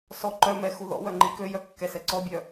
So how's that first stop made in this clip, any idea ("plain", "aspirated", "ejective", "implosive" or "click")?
click